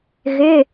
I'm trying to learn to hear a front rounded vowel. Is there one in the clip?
yes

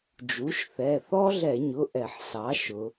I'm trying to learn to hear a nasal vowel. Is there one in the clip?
no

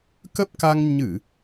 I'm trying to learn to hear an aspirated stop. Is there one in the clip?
no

